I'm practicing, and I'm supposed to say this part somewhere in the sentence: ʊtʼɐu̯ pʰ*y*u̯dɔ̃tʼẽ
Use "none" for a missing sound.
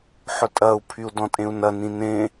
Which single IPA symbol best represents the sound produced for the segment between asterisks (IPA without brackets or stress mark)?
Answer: y